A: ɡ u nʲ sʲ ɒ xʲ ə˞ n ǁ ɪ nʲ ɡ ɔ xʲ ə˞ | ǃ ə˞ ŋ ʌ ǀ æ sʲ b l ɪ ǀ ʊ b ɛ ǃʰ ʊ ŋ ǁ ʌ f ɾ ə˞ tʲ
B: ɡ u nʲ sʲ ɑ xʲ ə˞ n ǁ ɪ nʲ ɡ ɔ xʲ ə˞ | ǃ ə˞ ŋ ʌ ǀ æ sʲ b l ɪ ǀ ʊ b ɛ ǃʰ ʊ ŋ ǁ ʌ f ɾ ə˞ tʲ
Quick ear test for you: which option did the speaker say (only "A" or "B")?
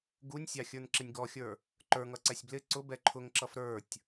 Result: B